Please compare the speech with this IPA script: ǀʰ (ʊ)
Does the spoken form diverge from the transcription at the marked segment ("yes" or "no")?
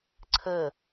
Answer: yes